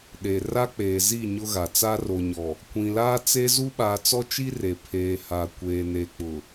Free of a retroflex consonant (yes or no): yes